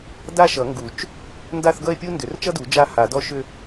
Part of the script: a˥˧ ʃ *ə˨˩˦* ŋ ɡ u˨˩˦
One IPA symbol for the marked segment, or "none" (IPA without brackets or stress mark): ʌ˨˩˦